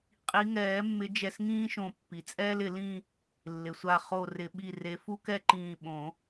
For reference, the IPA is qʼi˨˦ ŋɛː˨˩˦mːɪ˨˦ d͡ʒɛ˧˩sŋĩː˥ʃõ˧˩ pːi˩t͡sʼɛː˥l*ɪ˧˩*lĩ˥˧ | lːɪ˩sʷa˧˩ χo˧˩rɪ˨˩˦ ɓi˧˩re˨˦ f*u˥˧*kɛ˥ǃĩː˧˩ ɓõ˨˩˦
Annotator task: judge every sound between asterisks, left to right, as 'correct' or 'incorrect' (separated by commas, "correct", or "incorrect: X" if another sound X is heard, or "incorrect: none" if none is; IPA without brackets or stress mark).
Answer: incorrect: ɪ˨˩˦, incorrect: u˥